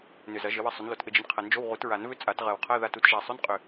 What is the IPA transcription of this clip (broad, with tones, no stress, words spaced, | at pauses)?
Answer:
nʏ˨˩zɐ˨˩˦ ʒɘ˩˥wɘ˦˥ sˤʏ˩˥nlo˨˩˦tʔɘ˧d͡ʒɘ˧n qʰɐ˨˩˦nd͡ʒo˧˥˧w ʁu˨˩˦tɹa˨˩˦nvʏ˦˥ t͡sʼa˨˩˦t ʁɜ˨˩wqʰɜ˧˥˧ ða˧tu˩˥t ʒa˨˩sˤʏ˧˥˧nqʼʏ˨˩